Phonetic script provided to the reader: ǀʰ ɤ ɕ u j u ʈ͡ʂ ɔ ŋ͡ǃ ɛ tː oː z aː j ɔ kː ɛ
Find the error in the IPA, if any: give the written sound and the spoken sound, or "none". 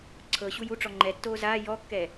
none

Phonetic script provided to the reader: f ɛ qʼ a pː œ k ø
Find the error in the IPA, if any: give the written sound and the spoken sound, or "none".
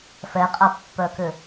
none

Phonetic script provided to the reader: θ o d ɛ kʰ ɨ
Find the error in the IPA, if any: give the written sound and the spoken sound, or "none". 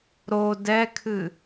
θ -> ɾ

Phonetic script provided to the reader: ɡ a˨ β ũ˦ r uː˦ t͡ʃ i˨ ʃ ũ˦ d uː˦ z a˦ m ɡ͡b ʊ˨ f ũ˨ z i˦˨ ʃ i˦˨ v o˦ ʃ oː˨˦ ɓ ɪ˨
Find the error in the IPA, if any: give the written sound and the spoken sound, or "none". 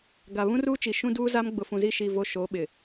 none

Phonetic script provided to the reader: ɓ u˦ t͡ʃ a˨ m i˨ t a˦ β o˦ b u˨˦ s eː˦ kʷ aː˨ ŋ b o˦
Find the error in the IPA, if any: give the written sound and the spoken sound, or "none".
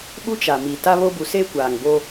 none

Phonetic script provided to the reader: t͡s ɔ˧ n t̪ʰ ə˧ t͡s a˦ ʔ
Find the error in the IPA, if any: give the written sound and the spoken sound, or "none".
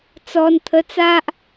none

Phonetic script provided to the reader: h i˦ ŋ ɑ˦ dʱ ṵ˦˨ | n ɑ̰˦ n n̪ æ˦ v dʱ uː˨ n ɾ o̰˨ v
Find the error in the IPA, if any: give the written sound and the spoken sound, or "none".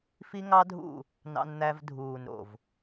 h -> f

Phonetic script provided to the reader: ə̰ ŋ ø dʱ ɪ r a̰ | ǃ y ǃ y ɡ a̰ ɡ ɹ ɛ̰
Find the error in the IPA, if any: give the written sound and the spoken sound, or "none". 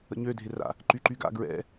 ŋ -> ɲ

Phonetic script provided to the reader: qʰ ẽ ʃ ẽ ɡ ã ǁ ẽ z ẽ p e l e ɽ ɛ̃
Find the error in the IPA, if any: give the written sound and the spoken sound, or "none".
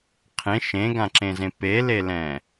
ɽ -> l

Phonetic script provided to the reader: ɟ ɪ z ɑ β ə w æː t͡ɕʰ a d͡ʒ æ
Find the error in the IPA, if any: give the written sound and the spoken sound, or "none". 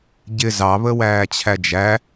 a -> æ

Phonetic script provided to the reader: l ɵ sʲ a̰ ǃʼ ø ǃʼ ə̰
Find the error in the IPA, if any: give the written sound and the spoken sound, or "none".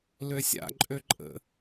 ɵ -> ø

